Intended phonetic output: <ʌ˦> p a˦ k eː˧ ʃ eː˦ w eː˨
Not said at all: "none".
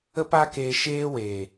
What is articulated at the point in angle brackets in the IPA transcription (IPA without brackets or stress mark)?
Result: ə˦